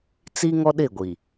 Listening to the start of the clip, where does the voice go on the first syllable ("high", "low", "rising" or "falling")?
high